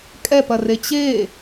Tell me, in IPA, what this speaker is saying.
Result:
kʼ ɛ p ɐ r e t͡ɕ e

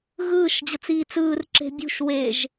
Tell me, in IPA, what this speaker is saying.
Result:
ɣ ɯː ʃ d͡ʑ ɤ t͡s iː t͡s ɯː r ǁ e̤ bʲ ṳ ʃ w e ʒ

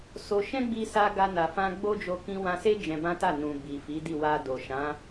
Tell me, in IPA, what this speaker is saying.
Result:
s o˧ ʃ ɛ̃˦ ɡ͡b i˧ s a˧ ɡ a˧ n a˨ f ã˧ ɡ͡b o˦ d͡ʒ o˧ k ĩ˧ w ã˧ s e˦ d͡ʒ ɛ̃˧ b ã˦ t a˦˨ n ũ˨ b i˨ f i˨˦ d i˦˨ w a˧ d o˨ ʃ ã˨˦

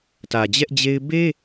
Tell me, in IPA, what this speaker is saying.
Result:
t ä˨ d͡ʑ ɛ˦ ʔ d͡ʑ e˦ ɪ̯ b e˦

